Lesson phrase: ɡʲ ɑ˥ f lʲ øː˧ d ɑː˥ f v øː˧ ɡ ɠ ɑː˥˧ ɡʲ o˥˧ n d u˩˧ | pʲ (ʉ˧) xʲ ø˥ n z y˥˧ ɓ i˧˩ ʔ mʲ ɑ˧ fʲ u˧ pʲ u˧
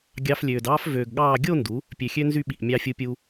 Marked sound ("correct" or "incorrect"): incorrect